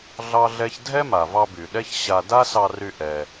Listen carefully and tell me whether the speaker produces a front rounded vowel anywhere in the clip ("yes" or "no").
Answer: yes